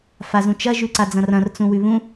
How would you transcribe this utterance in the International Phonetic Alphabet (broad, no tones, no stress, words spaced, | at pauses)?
fazũt͡ʃɐ ʒʉǀad͡zɐ̃rɐ̃r t͡sũwʉβũ